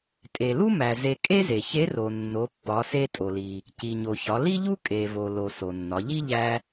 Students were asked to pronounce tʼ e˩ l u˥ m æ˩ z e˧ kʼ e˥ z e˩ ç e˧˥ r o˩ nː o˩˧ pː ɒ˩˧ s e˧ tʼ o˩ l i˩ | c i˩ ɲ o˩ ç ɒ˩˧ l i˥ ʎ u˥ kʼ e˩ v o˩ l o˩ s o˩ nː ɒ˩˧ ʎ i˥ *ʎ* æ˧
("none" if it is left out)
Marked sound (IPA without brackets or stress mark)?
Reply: ʎ